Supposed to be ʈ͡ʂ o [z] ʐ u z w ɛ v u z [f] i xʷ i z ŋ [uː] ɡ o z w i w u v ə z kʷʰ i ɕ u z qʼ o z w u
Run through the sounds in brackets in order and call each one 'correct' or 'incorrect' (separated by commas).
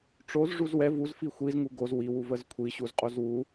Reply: correct, correct, incorrect